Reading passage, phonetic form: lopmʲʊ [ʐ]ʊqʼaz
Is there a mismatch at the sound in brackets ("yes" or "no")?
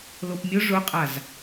no